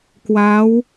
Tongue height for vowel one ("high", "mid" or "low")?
low